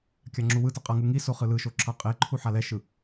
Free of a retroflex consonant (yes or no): yes